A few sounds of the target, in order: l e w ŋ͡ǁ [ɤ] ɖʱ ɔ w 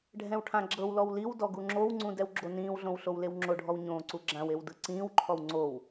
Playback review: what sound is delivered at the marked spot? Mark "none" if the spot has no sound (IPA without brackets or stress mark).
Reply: o